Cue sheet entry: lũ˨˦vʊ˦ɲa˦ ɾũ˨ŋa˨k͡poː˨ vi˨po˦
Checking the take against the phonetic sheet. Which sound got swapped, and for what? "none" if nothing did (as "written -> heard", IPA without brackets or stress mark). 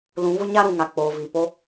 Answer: none